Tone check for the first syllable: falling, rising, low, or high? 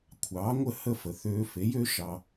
rising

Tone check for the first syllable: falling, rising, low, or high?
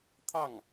falling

